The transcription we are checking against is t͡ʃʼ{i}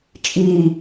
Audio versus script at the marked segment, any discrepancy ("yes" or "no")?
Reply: no